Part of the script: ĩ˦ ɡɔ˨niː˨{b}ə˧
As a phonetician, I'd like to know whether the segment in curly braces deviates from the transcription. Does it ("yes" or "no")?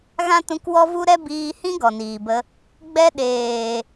no